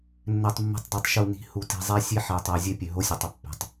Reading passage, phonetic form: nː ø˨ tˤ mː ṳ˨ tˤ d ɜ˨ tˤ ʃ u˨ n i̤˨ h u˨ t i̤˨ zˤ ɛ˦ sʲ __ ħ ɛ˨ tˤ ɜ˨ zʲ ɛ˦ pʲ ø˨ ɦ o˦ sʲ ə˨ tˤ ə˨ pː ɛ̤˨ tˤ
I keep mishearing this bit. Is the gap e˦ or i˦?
e˦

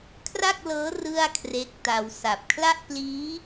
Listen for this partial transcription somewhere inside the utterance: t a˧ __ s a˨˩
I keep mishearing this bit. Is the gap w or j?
w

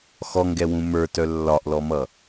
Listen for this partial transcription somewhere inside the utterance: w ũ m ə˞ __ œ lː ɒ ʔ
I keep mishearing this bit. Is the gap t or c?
t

